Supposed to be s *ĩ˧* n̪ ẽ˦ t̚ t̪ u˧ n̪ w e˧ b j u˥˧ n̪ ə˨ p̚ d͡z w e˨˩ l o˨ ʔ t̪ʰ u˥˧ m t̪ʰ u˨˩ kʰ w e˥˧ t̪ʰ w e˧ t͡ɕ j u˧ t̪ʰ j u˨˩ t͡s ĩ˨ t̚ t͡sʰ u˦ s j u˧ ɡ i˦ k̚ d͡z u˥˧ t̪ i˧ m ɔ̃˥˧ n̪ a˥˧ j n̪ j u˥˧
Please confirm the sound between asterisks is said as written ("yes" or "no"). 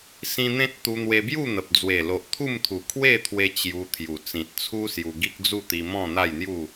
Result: yes